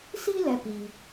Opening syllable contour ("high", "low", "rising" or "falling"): high